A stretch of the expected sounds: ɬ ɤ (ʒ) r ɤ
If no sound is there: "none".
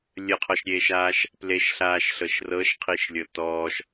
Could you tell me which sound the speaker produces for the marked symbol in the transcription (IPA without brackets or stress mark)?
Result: ʃ